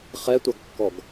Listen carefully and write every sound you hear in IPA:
χ ɛ tʷ a ɡ kː ɔ ɡ

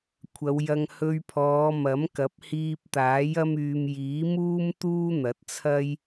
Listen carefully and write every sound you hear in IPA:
kʷʰ ɐ˨˧ w j ɐ˧ ŋ h ɵ˧ ɥ pʰ ɔː˨˧ m ɐ˨˥ m k ɐ˨˥ p̚ h iː˧ p̚ t̪ aː˨˥ j ɐ˥ m yː˧ m j iː˨˥ m uː˥ m t̪ uː˥ n̪ ɐ˨˥ t̚ t͡sʰ ɐ˥ j

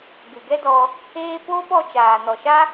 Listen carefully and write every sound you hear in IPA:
ɡ ɨ˨ ɡ ɛ˦ d ɔ˧ | eː˧ p oː˦ p ɔ˧ t͡ʃ aː˨ n ɔ˨ ʃ a˦

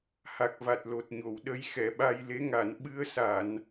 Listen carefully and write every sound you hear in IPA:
h a˨˩ k̚ v a˨˩ t̚ l o˨˩ t̚ ɲ o˨˩˨ w ɗ ə˧˥ j x ɛ˨˩˨ ɓ a˧ j l e˧˥ ŋ a˨˩˨ n ɓ ɨ˧ ə̯ s a˨˩˨ n

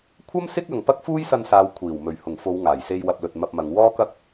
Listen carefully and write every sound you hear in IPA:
kʷʰ ɐ˥ m s ɪ˥ k̚ ɐ˨ ŋ p ɐ˥ k̚ f uː˥ j s ɐ˧ n s aː˨ w kʷʰ iː˨˩ w m ɵ˨˩ ɥ h ʊ˨˩ ŋ f o˨˧ w ŋ aː˨˩ j s e˧ j w ɐ˧ p̚ l ɵ˨ t̚ m ɐ˧ p̚ m ɐ˨˧ ŋ w ɔː˥ k ɐ˥ k̚

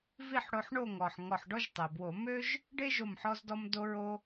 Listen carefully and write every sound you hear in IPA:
v i˥˨ ħ ɽ o˧ ħ ɳ o˥˨ ŋ ɔ˩ ħ ŋ ɔ˧˩ ħ ɖ ɔ˥ ʒ tˤ e˩ b w o˧˩˧ m ø˥ ʒ | ɖ e˥ ʒ o˧˩ m ħ ɔ˧ z d ɔ˧ m d o˧ ɹ o˧

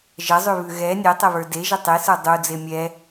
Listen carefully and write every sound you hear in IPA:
ʒ ə zˤ ʉ β ʉ ɣ ɛ nʲ e tˤ ɛ β ə˞ d e ʒ ə tˤ e s ə˞ dˤ u d͡z e mʲ ɛ

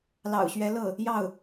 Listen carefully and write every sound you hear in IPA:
l ɑ̰˨˩ ʊ̯ ɕ ɥ ɛ˧˥ l ɤ˥˩ | j ɑ˥˩ ʊ̯

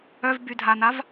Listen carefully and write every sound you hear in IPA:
œ v b y dʱ a n a v

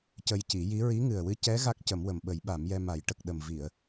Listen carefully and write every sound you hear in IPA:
c ə˧ j c i˨˩˦ j i˧˥ ɹ i˧˥ ŋ ɨ˨˩ ə̯ w ɨ˧ c ɛ˧˥ ɣ a˦˥ k̚ c ə˨˩˦ m w ə˨˩ m ɓ ə˨˩˦ j ɓ a˨˩˦ m j ɛ˧ m a˨˩˦ j ʈ ə˨˩ k̚ ɗ ə˨˩ m v i˨˩˨ ə̯

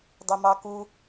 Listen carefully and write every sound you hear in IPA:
dˤ i m ɑ k u

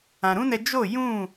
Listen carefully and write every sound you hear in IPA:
ã˨ ɾ ũ˦ n ɛ˧ d͡ʒ o˦˨ j ũ˦˨

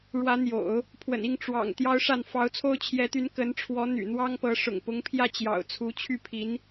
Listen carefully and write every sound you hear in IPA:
ɻ w ä˧˥ n̪ j o̰˨˩˦ ʊ̯ | pʰ w ə̰˨˩ n i˥˩ ŋ ʈ͡ʂ w ɑ̰˨˩ ŋ t̪ j ɑ˥ ʊ̯ ʂ a˥˩ n f ɑ˧˥ ʊ̯ t͡sʰ o˥ ʊ̯ t͡ɕʰ j ɛ˧˥ t̪ y˧˥ n k ə˧˥ n ʈ͡ʂʰ w ɔ˧˥ n̪ y̰˨˩ n̪ w ɑ˥ ŋ p ɤ˧˥ ʂ ʊ̰˨˩ ŋ p ʊ˧˥ ŋ pʰ j ä˥˩ t͡ɕ j ɑ̰˨˩ ʊ̯ t͡sʰ u˧˥ t͡ɕʰ y˥˩ pʰ i˧˥ n

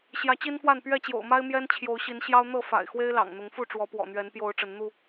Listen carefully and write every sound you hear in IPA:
ɕ j ä˨˦ t͡ɕ i˦ n f w a˥˨ n p ɥ ɛ˥˨ t͡ɕ j o̰˨˩ ʊ̯ m a˦ ɪ̯ m j ɛ˦ n t͡ɕʰ j o˨˦ ʊ̯ ɕ i˨˦ n ɕ j ɑ˦ ʊ̯ n̪ ɤ˥˨ f a̰˨˩ ɪ̯ x w e˦ ɪ̯ l ɑ̰˨˩ ŋ n̪ ʊ˨˦ ŋ f u˥˨ ʈ͡ʂ w ɔ˨˦ p w ɔ̰˨˩ n̪ ɥ ɛ˨˦ n p j o˨˦ ʊ̯ ʈ͡ʂ ə˨˦ n n̪ u˥˨

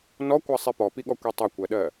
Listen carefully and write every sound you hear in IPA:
n ɔ kʷ ɜ sˤ i p ɔ p i ɠ ɔ kʷ i tˤ ɐ kʷ ɜ ɗ ɜ

